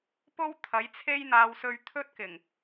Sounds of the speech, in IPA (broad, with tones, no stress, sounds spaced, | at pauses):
p o˥ w t̪ʰ ɐ˨˥ j t͡sʰ e˥ j n̪ aː˧ w s ɵ˧ ɥ t̪ʰ ɵ˥ t̚ k ɪ˨˩ ŋ